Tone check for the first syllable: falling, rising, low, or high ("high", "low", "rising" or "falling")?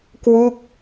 falling